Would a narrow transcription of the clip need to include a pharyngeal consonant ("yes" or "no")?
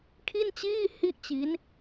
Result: no